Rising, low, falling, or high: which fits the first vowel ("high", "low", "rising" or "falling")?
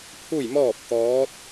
falling